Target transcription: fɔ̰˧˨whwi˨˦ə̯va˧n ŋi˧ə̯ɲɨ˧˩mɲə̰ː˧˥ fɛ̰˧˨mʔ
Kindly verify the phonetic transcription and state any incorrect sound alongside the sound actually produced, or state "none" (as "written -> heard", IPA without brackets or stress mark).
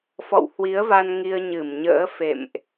ɛ̰˧˨ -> ḛ˧˨